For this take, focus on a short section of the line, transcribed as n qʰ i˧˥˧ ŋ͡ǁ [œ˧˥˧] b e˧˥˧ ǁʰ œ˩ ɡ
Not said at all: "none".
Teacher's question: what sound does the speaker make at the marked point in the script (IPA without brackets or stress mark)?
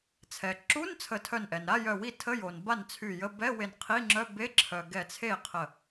œ˧˥˧